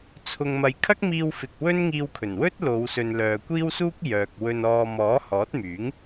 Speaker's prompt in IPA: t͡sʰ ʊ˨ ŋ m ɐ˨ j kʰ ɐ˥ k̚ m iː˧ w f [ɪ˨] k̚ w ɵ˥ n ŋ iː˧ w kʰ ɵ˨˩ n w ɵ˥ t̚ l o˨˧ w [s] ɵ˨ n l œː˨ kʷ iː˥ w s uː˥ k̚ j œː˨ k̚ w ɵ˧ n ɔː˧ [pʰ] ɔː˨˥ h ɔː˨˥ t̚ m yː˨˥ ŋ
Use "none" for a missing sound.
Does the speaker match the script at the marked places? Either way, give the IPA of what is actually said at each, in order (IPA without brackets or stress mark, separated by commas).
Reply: ɪ˨, s, m